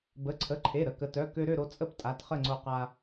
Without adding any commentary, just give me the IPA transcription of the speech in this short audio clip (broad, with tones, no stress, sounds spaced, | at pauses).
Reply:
b ə˩˧˩ ǀʰ ə˩˧˩ ǃʰ e˩˧˩ ɾ ə˩˧˩ k ə˩˧ t œ˩˧˩ k ø˧ ɾ ø˥˨ ɾ o˧ t͡sʼ ə˥˨ p tʼ a˩˧˩ t χ ə˥˨ ŋ͡ǀ o˧ q a˧